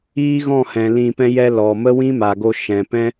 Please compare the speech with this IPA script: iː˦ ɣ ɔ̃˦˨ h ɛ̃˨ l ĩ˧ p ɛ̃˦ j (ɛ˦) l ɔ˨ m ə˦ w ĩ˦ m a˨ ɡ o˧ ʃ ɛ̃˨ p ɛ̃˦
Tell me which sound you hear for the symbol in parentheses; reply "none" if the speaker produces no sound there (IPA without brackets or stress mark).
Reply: ɛ˦